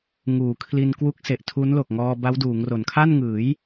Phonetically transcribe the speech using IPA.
ŋuː˩˦kʰli˧n kwu˦˥k̚se˨˩ʔtʰu˦˥nlo˨˩k̚ ŋɔː˧ba˦˥w duː˩˦ŋro˩˦n kʰa˥˩nŋɯː˩˦j

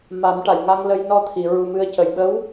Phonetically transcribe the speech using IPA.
ma˨˩˦mʈa˨˩˨jŋa˧ŋlə˧j nɔ˧t̪ʰi˨˩˨ ɹu˨˩ mɨ˧ə̯cə˨˩j ɓə˧˥w

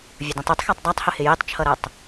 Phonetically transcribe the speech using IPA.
vʲədĩtˤitˤxætˤ dˤætˤhəhɪ jitˤt͡ʃʰʌɾɜtˤ

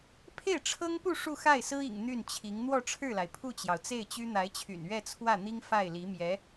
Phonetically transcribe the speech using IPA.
pʰe˥˩ɪ̯ʈ͡ʂʰɤ˥ŋpu˥˧ ʂu˥˧xa˥˩ɪ̯sɹ̩˥ḭ˨˩ŋ n̪y˥˩nt͡ɕʰi˧˥ŋ n̪wɔ˥˧ʈ͡ʂʰɻ̩˥˩la˩ɪ̯ pʰu˥˩t͡ɕjɑ˩ʊ̯t͡se˥˩ɪ̯t͡ɕy˥ n̪a˧˥ɪ̯t͡ɕʰy̰˨˩n ɥɛ˥˧ t͡sʰwä˥˩n̪i˥ŋ fa˥˩ɪ̯li˧˥mjɛ˧˥

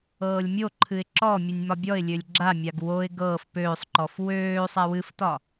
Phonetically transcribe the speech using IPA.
ɤːlʲmʲoǃʰɨɪ̯ ǁɔmʲɨnʲ mɒbʲɔɪ̯lʲølʲ ɡ͡ǁamʲaɡ woɪ̯ ɡɤːf pøːsˤǃɔf wøː sˤawɨftɒ

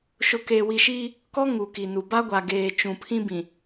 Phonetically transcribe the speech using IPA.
ʃʊ˨keː˨wi˨ ʃiː˦ | kɔ˦ŋu˨ ki˨nu˨ ba˦ɡʷa˨ɡeː˨ t͡ʃũ˨pʰĩ˦bĩ˨

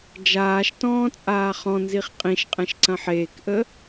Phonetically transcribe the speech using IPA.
d͡ʒaːʃtɔ̃ː t͡sʼaːχɔ̃nziχ qʼĩʃqʼɛ̃ʃ ǀɐ̃ħeːkʔə

